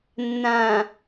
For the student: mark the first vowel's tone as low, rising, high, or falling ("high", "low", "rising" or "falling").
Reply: low